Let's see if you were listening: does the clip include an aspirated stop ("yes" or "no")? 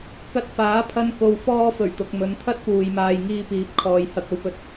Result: yes